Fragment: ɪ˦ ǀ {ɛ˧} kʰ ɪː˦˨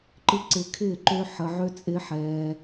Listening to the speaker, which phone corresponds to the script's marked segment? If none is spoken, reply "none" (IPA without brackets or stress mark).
ɪ˧